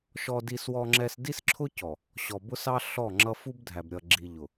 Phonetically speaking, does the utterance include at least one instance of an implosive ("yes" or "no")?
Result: no